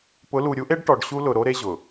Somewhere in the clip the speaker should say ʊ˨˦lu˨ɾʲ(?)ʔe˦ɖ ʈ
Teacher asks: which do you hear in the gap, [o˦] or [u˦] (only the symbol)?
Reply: u˦